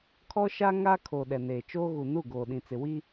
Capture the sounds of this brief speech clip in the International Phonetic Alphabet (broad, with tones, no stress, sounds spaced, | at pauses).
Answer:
kʰ ɔ˦ ʃ a˦ ŋ a˦ kʰ o˨ ɗ ɛ˨ n eː˨ t͡ʃ oː˦ ɣ u˨ n u˦˨ ɡ oː˨ ɗ ĩ˨ t͡s ɪ˨ w i˦